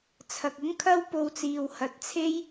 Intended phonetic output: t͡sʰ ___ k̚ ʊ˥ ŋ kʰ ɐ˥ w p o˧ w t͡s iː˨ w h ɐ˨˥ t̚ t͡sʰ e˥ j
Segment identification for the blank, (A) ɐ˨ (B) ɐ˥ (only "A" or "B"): A